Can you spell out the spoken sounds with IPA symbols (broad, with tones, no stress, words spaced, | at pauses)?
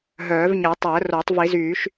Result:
ɦœː˨˩˦vɲɛ˨˩˦tˤo˨˩˦ə̯ ro˨˩˦tˤ vi˨˩˦zyː˨˩˦ʃ